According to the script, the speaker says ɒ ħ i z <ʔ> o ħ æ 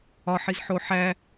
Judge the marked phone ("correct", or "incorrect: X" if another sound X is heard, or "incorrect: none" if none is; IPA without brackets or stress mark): incorrect: ħ